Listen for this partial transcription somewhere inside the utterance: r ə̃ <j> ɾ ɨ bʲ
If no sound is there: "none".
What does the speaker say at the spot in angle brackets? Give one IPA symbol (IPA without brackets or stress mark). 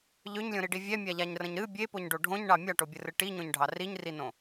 ɲ